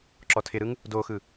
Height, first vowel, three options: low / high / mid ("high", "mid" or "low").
mid